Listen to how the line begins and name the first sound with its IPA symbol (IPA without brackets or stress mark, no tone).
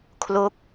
kʰ